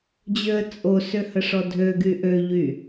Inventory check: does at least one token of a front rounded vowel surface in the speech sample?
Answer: yes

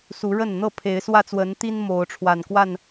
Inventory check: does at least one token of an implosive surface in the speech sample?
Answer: no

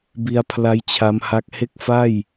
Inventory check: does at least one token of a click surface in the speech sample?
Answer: no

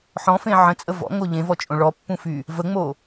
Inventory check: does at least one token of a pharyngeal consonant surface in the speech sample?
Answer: yes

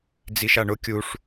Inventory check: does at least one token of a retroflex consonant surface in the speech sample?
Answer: yes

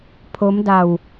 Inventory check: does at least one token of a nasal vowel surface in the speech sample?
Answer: no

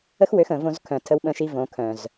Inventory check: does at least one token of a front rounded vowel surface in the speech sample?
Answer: yes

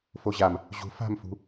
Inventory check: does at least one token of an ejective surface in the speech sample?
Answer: no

